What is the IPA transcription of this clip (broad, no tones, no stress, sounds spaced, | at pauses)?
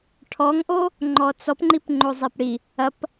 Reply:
ʈʰ ɔ ŋ ʔ o | ŋ͡ǃ ɔ t͡s ɔ p ŋ͡ǃ i p ŋ͡ǃ o zˤ e p ɽ i | ɐ p